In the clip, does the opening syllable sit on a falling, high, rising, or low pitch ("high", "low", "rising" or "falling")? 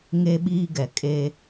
high